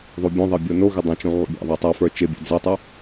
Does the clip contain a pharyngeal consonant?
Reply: yes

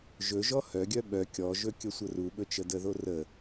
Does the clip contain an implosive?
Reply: yes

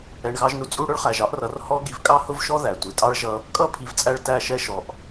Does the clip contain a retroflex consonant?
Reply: yes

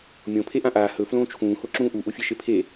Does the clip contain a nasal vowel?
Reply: yes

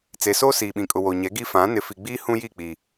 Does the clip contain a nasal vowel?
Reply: yes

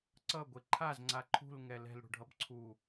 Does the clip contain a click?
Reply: yes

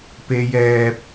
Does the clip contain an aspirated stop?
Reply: no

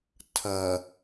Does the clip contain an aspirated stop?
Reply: yes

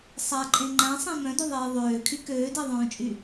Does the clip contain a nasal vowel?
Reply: yes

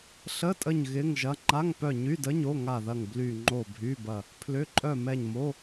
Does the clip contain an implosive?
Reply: no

